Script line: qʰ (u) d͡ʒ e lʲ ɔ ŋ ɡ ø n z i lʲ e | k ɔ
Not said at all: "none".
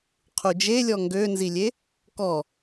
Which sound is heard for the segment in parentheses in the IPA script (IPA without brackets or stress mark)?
u